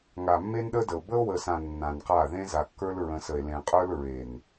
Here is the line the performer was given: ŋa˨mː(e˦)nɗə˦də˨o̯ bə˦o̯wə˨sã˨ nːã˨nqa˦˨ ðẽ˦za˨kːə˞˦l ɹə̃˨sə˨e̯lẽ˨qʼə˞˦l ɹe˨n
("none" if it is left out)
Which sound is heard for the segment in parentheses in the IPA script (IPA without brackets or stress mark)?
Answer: e˦